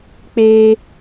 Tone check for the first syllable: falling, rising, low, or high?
high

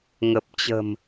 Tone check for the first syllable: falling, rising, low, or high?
low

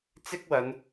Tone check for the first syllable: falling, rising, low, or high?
high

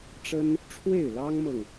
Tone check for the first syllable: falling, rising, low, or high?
high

